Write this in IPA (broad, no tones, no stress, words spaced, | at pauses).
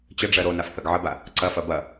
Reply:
t͡ɕəɖ͡ʐɜ ɾonafθɐɡ ʕəba | ǀɐfɐ bɐ